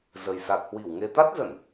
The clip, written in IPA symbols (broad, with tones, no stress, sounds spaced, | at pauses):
z ə˨˩ j s a˨˩ t̚ h w i˧˩ w ŋ e˧ t̪ a˦˥ t̚ z ə˧˩˨ n